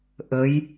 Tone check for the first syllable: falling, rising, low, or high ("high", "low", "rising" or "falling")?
rising